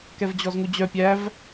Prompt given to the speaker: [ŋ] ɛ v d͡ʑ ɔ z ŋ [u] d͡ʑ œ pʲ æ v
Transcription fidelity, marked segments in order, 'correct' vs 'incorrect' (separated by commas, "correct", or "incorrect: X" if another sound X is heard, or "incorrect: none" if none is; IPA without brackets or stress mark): incorrect: k, correct